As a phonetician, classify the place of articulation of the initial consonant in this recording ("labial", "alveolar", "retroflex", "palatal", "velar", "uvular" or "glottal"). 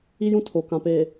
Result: palatal